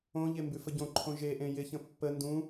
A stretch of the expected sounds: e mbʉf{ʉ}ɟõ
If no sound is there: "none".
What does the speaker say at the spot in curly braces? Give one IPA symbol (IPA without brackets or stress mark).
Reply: ə